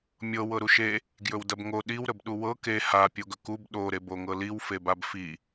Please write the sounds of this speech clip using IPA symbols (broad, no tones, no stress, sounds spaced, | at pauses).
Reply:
mʲ ɤ w ɤ ɾ u ʃ e | ɡ j ɵ w d ɐ b ŋ o ɗ i w ɾ ə b ɗ u w ɤ k e h a pʲ o ɡ ɵ k u b ɗ o ɾ e b o ŋ ɤ l i w f e b a b f i